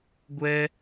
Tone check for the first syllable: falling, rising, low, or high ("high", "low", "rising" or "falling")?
high